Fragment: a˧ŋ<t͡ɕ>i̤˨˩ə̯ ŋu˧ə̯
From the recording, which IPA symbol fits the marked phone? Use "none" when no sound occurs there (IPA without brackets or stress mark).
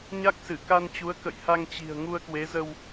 t͡ɕ